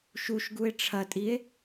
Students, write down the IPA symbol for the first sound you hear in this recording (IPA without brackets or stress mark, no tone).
ʃ